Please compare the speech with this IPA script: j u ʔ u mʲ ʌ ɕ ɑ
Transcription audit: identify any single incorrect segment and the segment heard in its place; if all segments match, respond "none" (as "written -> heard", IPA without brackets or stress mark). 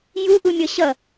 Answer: ɑ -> ʌ